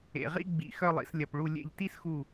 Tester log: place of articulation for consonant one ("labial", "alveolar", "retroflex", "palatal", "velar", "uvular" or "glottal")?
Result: uvular